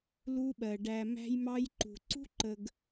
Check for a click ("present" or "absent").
present